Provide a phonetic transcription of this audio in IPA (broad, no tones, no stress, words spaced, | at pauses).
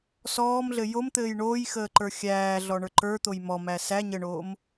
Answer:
sɔːmɮɘ jomt̪ɘːj ɳoːjxəːǃə˞ xʲæːɮɔɳə˞ ǃə˞t̪oj mɔmæ sæ ɲəɳoːm